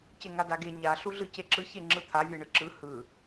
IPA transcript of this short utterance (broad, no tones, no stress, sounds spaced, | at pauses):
c e ŋ a d a ɡ e ɲ a ɬ u ɮ ɯ c e ǁ ɯ ç e ŋ͡ǁ ɯ t̪ʰ a vʲ e ɳ ɯ ǁ ɯ h ɯ